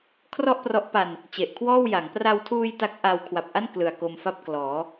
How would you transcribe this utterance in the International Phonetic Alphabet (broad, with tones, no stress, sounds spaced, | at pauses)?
kʰ r ɔ˥˩ ʔ p r ɔ˦˥ ʔ p a˧ n | t͡ɕ e˨˩ ʔ kʰ w ɔː˥˩ w j a˩˦ ŋ p r a˧ w tʰ uː˧ j t a˦˥ k̚ ʔ a˧ w kʰ w a˨˩ p̚ ʔ a˥˩ n k l ɯ˨˩ a̯ k o˧ m f a˥˩ p̚ k l ɔː˩˦